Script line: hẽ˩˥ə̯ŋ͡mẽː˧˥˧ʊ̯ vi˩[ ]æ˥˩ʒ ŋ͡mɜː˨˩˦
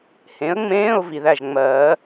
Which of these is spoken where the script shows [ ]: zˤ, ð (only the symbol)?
ð